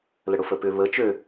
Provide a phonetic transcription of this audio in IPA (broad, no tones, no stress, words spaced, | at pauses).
ləɽʊfəpʏ βə t͡ʃø